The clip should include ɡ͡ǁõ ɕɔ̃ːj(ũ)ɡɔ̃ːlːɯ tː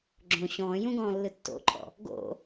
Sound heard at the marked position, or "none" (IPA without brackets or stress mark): ũ